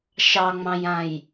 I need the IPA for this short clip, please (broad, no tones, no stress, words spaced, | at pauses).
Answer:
ʃɑŋ͡mɑ̃jãj